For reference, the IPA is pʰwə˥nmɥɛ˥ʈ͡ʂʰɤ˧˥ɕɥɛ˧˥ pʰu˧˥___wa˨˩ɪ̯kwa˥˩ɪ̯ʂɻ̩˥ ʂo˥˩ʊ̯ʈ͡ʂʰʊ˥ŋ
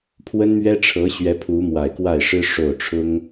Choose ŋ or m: m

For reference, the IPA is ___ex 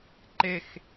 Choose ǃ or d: ǃ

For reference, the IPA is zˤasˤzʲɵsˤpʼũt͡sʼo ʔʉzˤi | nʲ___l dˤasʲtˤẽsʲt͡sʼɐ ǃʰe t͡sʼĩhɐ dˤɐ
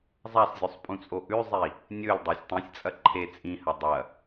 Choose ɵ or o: ɵ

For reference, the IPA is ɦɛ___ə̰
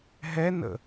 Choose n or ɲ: n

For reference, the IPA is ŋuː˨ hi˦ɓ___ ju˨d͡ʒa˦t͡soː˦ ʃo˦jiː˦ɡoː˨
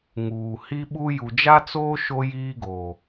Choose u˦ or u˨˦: u˦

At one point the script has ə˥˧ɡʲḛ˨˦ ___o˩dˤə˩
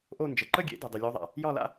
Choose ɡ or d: d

